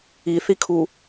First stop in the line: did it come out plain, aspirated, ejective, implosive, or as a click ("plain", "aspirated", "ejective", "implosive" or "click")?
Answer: aspirated